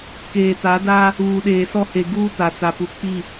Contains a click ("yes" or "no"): no